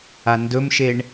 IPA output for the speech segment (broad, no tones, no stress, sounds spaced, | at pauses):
a n d ɵ m ʃ e ɳ